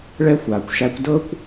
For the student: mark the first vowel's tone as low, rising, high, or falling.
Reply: high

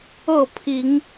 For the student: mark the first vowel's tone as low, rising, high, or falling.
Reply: falling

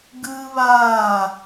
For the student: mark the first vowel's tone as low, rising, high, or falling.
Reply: high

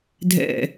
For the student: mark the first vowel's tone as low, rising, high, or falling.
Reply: falling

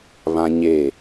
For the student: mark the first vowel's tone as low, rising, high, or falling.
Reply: high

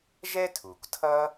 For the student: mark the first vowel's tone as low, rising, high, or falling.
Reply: high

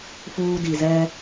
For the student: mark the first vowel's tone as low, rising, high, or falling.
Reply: high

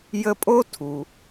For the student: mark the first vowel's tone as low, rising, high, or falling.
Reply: high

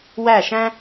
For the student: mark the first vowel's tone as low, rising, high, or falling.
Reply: falling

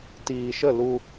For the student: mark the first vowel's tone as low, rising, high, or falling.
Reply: low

